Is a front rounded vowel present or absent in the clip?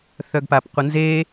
present